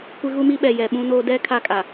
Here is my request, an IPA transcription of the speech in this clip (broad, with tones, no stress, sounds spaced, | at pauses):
kʷ ɪ˦ ɣ u˦ m i˦ ɓ ɛ˨ j ɛ˨ ɓ ũ˦ n oː˦ d ɛ˦ kʰ a˦ kʼ a˨